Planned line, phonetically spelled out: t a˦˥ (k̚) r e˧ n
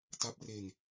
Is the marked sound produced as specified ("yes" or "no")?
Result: no